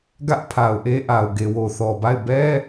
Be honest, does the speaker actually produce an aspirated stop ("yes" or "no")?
yes